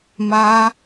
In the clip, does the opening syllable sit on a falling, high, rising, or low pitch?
high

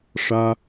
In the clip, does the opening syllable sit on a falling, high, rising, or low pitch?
high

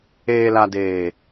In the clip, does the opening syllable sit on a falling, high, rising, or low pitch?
low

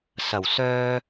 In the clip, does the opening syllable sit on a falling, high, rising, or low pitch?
low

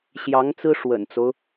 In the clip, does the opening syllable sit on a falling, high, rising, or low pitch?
rising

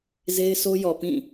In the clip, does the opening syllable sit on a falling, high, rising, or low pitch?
high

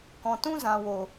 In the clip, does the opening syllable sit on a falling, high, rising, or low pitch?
low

